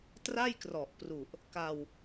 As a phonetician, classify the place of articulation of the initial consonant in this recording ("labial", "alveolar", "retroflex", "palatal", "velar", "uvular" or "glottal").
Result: alveolar